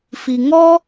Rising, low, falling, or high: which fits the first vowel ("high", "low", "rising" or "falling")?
low